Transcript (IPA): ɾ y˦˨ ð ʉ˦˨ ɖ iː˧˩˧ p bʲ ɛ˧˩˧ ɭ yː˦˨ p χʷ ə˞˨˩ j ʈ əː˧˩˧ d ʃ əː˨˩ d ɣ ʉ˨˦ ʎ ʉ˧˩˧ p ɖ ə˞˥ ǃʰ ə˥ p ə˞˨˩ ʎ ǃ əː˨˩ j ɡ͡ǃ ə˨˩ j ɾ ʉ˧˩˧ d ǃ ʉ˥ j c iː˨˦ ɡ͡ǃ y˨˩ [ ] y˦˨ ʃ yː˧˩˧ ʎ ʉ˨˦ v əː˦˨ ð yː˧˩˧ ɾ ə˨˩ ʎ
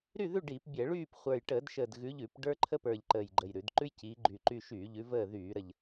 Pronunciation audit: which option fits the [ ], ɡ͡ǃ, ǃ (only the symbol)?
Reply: ǃ